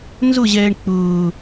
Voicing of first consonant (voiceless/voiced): voiced